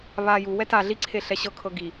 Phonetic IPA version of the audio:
βa juwɛ ta ɮiǀʰe ɬɛɕɤkʰɤ ɡi

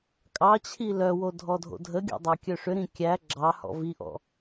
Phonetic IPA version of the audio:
kʼɑt͡ɕʰi lœwo dʱɔdʱo̰dʱəɡʲɔ̰ dˤɑkʲœʂʏɾĩ kʲæ ɡ͡ǁɑhɔ̰ viʔɔ̰

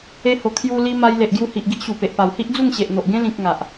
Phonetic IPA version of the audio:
e˧ho˨˩ kʰju˧ li˧ma˧j le˨ʔ ɡju˧hi˨ʔ ɡi˦ʔɕu˨˩pe˨ʔpa˨˩w hi˦ʔd͡zu˥˧ŋɕe˨ʔn̪o˨ʔ ɡẽ˧lĩ˨k̚ ŋa˨ʔ

